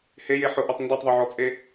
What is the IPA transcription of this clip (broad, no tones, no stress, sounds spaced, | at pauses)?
h e j e ħ ʊ ʔ ɔ tˤ n d ɔ tˤ ðˤ o ʕ ɔ t͡sʼ e